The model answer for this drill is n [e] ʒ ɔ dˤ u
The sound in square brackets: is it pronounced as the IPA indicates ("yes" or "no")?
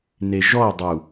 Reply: yes